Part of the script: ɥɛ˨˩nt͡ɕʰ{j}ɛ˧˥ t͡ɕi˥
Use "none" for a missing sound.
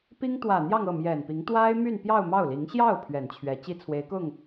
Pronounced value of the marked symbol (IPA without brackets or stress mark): ɥ